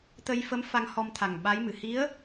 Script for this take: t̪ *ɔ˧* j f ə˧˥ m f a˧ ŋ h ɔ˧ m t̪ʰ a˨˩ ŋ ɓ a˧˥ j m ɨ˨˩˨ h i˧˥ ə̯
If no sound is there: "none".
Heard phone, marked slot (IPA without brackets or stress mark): ə˧